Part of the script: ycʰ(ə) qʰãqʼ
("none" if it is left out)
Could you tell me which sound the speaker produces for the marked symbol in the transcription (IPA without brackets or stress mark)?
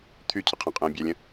ə